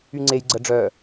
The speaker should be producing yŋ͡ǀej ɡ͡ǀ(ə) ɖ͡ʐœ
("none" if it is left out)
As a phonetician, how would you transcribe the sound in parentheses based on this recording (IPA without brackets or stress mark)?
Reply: ə